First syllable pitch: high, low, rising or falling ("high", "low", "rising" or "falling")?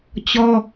high